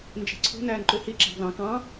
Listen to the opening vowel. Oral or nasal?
oral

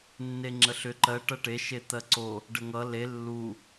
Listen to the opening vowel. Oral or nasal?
oral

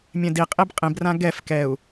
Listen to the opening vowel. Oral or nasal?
nasal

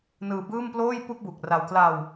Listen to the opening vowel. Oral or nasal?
oral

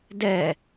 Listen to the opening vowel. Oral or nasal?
oral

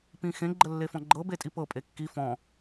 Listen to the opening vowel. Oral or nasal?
nasal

